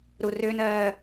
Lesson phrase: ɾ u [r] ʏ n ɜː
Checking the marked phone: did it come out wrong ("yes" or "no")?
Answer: no